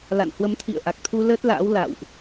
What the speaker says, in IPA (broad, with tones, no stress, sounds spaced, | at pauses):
l a̰˧˨ n h w ə˨˦ m t̪ʰ ḭ˧˨ ə̯ ʔ a˨˩ k̚ t̪ʰ u˧ l əː˦˥ t̚ l a̰ː˧˥ w l a̰˧˨ w ʔ